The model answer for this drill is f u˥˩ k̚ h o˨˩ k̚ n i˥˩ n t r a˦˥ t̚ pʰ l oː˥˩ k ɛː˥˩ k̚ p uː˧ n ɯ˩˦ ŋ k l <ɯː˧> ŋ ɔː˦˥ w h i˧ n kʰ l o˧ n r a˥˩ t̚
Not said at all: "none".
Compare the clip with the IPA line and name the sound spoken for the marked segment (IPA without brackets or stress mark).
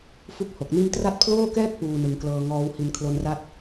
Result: ɤː˧